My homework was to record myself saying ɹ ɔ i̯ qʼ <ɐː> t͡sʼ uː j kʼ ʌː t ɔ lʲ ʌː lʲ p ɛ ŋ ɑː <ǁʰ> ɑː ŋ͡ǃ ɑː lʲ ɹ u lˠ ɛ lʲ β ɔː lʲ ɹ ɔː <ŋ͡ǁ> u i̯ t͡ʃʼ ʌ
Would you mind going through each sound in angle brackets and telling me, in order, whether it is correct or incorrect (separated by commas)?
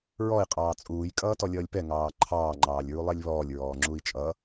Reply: incorrect, incorrect, correct